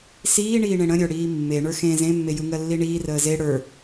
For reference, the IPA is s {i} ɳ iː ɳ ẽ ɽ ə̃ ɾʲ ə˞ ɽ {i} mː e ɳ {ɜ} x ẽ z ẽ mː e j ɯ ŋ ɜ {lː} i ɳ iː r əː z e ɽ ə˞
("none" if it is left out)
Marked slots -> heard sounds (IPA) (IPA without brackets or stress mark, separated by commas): iː, iː, ə˞, lː